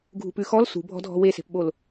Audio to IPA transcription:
ɡʱ ṳ p ʉ x ɔ l s ṳ bʱ ɔ̤ dʱ ɔ̤ w e s e̤ p ɓ o l

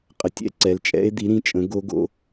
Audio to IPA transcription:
qʼ ə˩˥ tʲ ɛ̰˧˥ ǀ ɛ˩˧˩ l t͡ʃʼ ɛ̰˧˥ e̯ d̪ i˩˥ ɾ ĩ˩˥ t͡ʃʼ ə̃˩˥ ɡ o˧˥ ɡ o̰˧˥

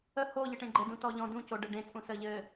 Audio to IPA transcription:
ə h o ʎ ɘ ʈ ẽ ɡ͡ǃ ɘ d ũ t ɔ ʎ ɔ̃ d ũ c o ɖ ɘ ɖ ẽ t͡sʼ ũ s ə ʎ ɘ

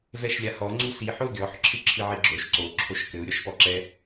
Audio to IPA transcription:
v ɛ ʃ lʲ a h ɔ ŋ͡ǀ u s i ħ o ɡʲ ɔ ħ ǁʰ ɨ ǁʰ ɨ ʕ i ɡ͡ǁ o ʃ ǀ o ǁʰ o ʃ k ɘ u̯ ɾʲ ɔ ʃ p ɔ ǁ ɛ

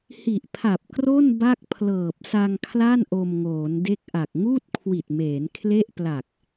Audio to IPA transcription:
h i˨˩ ʔ pʰ a˨˩ p̚ k r o˥˩ n b a˥˩ k̚ pʰ l ɤː˨˩ p̚ s a˧ ŋ kʰ l a˥˩ n ʔ o˧ m ŋ oː˩˦ n d e˥˩ k̚ ʔ a˨˩ k̚ ŋ uː˥˩ t̚ kʰ w i˨˩ t̚ m eː˩˦ n kʰ l e˥˩ ʔ p l a˨˩ k̚

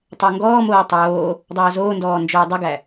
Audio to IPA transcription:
tˤ əː ŋ ɡ ɔː m oː tˤ oː | dˤ oː z oː n d ɔː n d͡ʒ oː dˤ ə ɡ æ

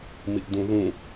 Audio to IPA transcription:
m i ʔ d ũ ð ũ

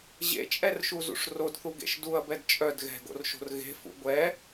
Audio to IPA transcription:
ʑ ḛ t͡ʃʼ ɛ r ʃ u z ṵ ʂ r o d θ u ɡ ḛ ʃ d u ɐ̯ b ɛ d t͡ʃʼ œ d ɣ ɛ̤ ɡ o̰ r ʃ o̤ r ɣ e̤ f ṵ ɡʷ ɛ

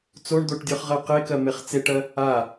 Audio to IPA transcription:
t͡s o ɳ d̪ o ʈ dʲ ə˞ χ ʁ ɜ q e k ɜ m e χ t͡s e ʈ ɜ | a

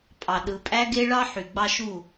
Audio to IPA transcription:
pʼ ɑ˨ ɗ ɯ˨ pʼ æ˦ ɡ e˦ ɭ ɑ˦ ħ y˨ ɡ͡b ɑ˦ ʃ u˦˨

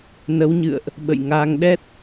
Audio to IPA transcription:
n ə˨˦ w ɲ ɨ̰˧˨ ə̯ ʔ | ɓ ə̰˧˨ j ŋ aː˧ ŋ ɗ ɛ˦˥ t̚

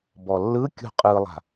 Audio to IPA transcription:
b ɔ lː ɯ kʲ ṳ qʼ ɯ lˠ a̤

